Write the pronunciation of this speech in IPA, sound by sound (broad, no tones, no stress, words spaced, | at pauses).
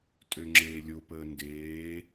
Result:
tʼøŋ͡ǁeːlʲopəː ndeː